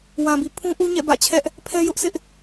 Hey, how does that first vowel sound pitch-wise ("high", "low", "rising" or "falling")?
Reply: low